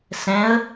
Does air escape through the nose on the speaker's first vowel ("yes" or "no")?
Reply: yes